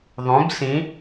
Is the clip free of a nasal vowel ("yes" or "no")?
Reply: no